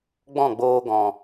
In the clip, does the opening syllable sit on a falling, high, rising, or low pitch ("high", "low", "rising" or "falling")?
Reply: falling